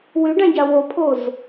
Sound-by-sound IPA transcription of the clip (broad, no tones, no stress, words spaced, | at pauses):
wyɖãɟa wopʰoz